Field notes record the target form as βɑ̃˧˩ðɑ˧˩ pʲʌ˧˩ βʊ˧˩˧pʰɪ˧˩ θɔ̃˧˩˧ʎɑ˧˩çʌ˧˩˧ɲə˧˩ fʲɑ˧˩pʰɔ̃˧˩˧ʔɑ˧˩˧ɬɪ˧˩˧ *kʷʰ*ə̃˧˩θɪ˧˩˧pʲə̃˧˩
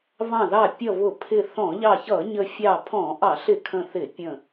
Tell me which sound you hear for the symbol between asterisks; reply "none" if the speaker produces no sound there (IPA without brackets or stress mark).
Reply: kʰ